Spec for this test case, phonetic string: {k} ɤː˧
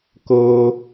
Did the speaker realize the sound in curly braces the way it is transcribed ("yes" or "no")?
yes